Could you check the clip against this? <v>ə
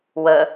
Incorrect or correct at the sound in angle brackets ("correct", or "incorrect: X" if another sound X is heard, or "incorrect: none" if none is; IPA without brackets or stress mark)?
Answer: incorrect: w